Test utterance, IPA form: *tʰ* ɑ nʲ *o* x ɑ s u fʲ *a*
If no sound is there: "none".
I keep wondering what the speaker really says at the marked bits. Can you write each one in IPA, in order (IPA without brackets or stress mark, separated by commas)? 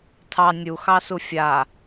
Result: tʰ, u, a